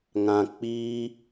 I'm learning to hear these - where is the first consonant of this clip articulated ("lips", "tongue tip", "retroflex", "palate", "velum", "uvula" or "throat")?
velum